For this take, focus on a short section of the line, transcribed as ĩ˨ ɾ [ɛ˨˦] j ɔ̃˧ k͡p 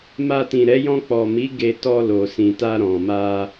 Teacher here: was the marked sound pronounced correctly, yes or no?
yes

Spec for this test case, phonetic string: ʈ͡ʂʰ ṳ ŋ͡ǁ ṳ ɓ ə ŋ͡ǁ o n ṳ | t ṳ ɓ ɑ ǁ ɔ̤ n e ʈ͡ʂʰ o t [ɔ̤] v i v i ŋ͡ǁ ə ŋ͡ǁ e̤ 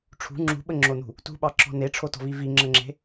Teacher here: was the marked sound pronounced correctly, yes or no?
yes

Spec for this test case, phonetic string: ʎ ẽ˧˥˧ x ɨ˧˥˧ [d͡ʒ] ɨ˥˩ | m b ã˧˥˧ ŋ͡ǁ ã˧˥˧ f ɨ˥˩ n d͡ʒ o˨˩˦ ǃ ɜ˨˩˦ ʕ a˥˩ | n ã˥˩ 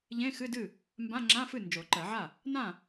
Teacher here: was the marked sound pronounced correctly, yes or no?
no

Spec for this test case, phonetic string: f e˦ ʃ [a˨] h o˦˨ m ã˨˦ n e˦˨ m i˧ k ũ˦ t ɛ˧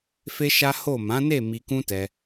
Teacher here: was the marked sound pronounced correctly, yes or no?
no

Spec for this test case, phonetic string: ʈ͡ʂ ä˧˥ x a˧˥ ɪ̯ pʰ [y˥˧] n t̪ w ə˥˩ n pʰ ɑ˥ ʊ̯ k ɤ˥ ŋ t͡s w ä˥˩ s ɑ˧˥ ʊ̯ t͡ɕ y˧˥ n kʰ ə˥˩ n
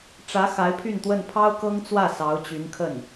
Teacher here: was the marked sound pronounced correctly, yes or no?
yes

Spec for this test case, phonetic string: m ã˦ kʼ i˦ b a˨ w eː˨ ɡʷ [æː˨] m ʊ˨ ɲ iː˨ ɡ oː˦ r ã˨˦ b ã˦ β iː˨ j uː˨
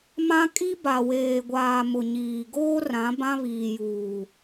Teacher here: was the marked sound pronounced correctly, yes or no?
no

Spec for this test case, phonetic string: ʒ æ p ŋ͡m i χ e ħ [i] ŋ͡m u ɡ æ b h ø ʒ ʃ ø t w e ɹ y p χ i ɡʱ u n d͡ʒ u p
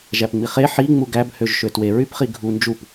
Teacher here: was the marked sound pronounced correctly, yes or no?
yes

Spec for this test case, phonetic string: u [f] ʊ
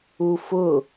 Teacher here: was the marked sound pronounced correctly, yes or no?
yes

